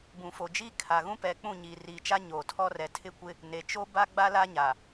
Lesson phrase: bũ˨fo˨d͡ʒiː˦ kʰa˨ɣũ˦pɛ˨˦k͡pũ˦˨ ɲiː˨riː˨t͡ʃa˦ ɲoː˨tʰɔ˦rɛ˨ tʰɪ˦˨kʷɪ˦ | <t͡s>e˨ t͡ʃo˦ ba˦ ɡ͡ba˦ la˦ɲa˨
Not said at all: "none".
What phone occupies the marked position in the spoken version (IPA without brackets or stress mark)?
n